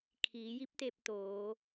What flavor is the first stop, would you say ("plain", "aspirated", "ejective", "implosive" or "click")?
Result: aspirated